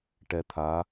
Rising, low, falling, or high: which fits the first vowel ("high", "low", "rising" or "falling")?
low